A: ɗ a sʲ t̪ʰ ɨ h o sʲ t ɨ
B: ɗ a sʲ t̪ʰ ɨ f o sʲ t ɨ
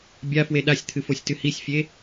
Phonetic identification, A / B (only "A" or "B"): B